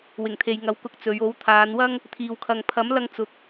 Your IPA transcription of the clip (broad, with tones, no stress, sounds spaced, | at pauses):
w ɪ˨˩ ŋ t̪ʰ e˨ j ŋ ɐ˨˧ w k ʊ˨˥ k̚ t͡s ɵ˨˧ ɥ o˨˥ w t̪ʰ aː˨˧ n w ɐ˥ ŋ | t̪ʰ iː˨ w kʰ ɐ˨ ŋ pʰ ɐ˨˥ m l ɐ˧ ŋ t͡s ʊ˨˥ k̚